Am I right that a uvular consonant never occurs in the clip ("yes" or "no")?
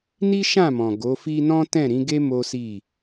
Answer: yes